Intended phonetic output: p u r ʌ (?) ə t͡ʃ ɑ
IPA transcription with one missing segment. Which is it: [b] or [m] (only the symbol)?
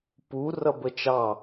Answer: b